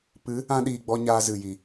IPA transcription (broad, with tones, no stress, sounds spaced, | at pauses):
p ɨ˨˦ | ã˧ ɗ iː˨ ɡ͡b ɔ˧ ɲ aː˧ z ɨ˨ j i˨